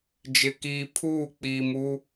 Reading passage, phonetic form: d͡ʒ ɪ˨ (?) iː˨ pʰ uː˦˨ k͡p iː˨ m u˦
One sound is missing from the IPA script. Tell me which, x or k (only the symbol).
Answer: k